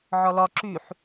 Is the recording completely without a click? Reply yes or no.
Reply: no